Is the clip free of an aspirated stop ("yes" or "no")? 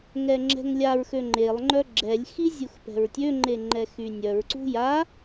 yes